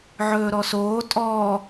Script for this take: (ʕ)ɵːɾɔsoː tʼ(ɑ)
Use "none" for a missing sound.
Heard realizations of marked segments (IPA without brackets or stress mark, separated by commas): ʕ, ɔ